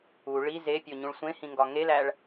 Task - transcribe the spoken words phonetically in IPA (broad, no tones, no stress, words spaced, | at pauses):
u ɭi zepʲoɲũɭ sʷẽhĩŋɡɒ ŋelæɭ